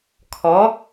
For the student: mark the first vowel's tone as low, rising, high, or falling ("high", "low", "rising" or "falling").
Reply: rising